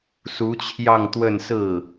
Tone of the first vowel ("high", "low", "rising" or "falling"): rising